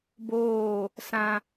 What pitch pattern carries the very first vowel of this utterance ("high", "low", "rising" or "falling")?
falling